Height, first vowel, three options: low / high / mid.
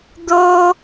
mid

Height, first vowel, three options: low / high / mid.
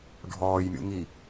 mid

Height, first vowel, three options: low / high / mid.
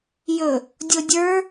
mid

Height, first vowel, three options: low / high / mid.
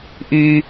high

